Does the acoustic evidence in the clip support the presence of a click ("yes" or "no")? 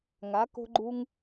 yes